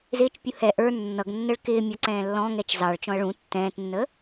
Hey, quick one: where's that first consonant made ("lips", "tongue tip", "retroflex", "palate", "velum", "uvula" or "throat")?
tongue tip